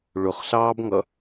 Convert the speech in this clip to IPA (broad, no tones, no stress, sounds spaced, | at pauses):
ɭ ʊ χ ɬ ɑː b ŋ ʌ